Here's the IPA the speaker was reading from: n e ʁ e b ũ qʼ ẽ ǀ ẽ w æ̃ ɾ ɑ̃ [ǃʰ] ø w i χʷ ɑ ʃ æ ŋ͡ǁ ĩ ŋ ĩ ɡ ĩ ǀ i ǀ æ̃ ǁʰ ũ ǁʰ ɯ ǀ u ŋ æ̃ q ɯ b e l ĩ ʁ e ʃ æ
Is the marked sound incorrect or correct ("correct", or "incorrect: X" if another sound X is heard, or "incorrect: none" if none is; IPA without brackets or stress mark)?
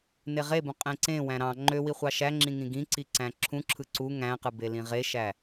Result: incorrect: ŋ͡ǃ